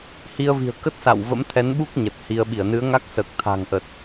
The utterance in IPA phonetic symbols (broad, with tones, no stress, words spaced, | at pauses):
hi˧ə̯vi̤˨˩ə̯kə˦˥t̚ sa̰˧˨wvə̰˧˥mt̪ʰɛ˨˦nɓu˦˥k̚ ɲə˨˩t̚hi˧ə̯ ɓi˧˩ə̯nɨ˨˦ə̯ŋa˦˥k̚səː˨˩k̚ t̪ʰa̤˨˩ŋʔə˨˩t̚